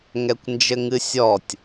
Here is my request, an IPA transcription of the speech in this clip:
ŋ ɛ kʷ n d͡ʒ ɘ ŋ ɨ sʲ ɔ tʲ

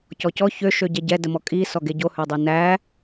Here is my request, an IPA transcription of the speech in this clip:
c ɔ c ɔ ç ø ʃ ø ɟ ɛ ɟ ɛ d ə m ɔ kʼ i s ɔ ɡ e ɟ o h ø dˤ e n æ

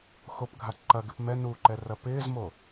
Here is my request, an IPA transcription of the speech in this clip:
x o p ɡʱ a ǃ ɐ ɡ ɪ p m ɛ n u ǃ ɛ r ɐ p ɪː z m o

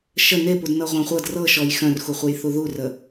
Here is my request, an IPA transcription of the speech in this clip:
ʃ ə n e p u d n ɤ ʁʷ œ̃ χʷ ɤ d r ɤ ʃ ɔ j x œ̃ r x u χʷ ə j θ u ð u r ə

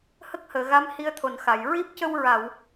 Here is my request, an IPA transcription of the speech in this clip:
h ə˦˥ k̚ h əː˨˩˨ ɣ a˧˥ m h i˧ ə̯ t̪ʰ o˨˩ n x a˨˩˨ j ɹ i˦˥ p̚ c ə˧ w ɹ a˨˩˨ w

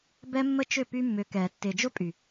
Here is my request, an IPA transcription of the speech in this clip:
b ɛ˦ mː ə˦ t͡ʃ ʏ˦˨ p y˦ mː ʏ˨˦ k ɛː˨ tː ɪː˨ d͡ʒ ʊ˦ pʼ y˨

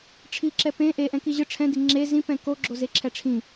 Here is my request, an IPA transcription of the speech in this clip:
ʈ͡ʂʰ i ǁ ɛ p ẽ ʔ e ʔ ɛ̃ k i ʑ ɯ ʈ͡ʂʰ ɛ̃ d i ŋ͡ǁ e z ĩ p ɛ̃ k o ɡ͡ǁ o z e ǁʰ ɛ ʈ͡ʂʰ ĩ

